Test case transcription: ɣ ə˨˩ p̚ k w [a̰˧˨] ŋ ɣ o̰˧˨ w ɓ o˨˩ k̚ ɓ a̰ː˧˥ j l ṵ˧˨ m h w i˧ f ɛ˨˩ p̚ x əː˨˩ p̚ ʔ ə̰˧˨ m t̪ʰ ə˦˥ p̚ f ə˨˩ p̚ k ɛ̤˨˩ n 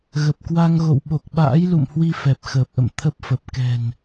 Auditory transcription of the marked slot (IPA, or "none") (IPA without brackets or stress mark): a˧